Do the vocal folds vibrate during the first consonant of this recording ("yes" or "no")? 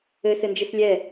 no